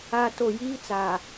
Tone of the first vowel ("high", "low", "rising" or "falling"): high